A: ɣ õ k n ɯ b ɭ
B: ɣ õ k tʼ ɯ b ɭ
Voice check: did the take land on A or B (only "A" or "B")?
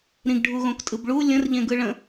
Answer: B